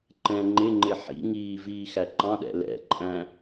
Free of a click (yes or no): no